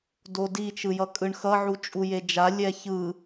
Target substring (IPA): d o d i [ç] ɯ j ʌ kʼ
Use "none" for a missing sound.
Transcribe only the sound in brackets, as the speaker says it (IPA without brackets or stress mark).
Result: t͡ʃ